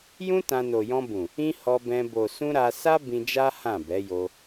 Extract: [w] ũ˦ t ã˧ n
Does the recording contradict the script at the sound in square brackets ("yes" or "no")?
yes